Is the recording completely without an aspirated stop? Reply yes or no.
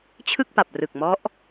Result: no